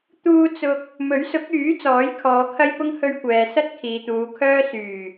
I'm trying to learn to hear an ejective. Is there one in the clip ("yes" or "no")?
no